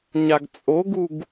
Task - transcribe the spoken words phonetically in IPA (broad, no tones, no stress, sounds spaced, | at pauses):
ɲ a ɡ t͡sʼ o ɡ u ɡ